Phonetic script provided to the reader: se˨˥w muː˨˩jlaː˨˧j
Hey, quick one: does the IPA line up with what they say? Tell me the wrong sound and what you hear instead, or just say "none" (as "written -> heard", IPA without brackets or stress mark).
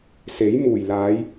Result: w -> j